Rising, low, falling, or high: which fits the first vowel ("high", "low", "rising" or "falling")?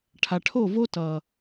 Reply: low